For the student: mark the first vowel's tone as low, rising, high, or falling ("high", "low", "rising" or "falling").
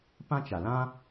high